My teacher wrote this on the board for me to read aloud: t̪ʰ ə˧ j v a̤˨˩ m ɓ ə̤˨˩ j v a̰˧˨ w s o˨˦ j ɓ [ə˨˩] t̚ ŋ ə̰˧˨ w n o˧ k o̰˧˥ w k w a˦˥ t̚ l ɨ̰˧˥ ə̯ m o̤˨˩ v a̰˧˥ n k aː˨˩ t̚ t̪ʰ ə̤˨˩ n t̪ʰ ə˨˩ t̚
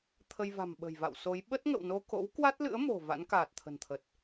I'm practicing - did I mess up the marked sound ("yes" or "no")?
yes